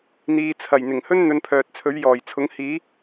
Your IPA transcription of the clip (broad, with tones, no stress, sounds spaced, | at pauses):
n̪ iː˧ t͡sʰ ɐ˨˩ j n̪ ɪ˨˩ ŋ h ɵ˥ n n̪ ɵ˧ n pʰ œː˨ t̚ t͡sʰ ɵ˨˥ ɥ j ɔː˨˩ j t͡sʰ ʊ˨˥ ŋ h iː˨˥